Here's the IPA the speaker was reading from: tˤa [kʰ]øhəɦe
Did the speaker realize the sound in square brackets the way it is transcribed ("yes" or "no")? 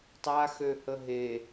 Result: no